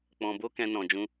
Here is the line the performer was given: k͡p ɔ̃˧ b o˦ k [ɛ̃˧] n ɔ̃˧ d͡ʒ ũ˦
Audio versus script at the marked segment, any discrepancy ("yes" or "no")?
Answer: yes